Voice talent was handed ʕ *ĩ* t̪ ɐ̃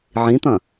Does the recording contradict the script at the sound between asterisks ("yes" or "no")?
no